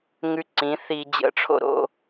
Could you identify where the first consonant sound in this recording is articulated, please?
velar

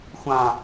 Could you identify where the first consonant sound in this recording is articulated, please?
velar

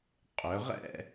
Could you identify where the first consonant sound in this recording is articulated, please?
uvular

